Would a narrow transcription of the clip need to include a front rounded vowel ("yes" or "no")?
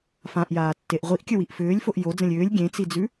yes